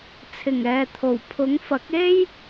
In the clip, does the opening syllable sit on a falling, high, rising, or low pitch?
low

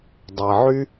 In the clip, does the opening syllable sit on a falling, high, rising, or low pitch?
low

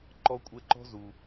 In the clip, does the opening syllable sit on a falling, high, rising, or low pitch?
high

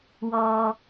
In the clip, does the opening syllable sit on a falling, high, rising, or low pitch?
low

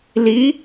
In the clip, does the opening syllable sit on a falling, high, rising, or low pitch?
rising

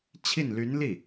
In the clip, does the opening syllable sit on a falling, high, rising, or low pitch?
falling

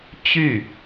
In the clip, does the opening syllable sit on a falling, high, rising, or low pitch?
falling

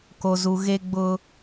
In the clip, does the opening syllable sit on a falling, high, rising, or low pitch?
low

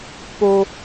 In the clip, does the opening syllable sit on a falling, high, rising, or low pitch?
high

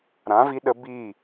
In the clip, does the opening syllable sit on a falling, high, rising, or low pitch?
rising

